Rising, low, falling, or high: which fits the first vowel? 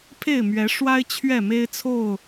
falling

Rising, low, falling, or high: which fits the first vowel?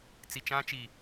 low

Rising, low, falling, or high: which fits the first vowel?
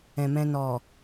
low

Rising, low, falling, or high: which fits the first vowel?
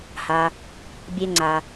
low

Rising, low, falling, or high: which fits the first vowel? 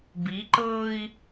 rising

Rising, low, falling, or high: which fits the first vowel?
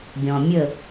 low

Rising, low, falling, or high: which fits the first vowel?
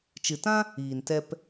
low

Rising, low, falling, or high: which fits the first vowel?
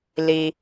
low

